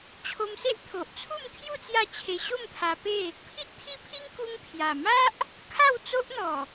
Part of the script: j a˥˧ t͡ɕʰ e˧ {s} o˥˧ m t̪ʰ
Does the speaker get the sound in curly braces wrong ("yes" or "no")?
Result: yes